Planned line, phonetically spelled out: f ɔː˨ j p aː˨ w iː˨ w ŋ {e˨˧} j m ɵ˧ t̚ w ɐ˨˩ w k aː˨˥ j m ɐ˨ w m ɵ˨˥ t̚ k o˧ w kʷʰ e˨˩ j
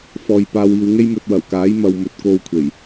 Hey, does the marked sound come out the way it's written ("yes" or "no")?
no